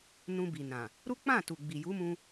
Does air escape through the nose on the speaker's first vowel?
yes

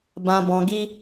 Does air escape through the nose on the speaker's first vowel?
yes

